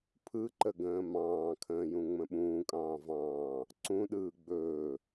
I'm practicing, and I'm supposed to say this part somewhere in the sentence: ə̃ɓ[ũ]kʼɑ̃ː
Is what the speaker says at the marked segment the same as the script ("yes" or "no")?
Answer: no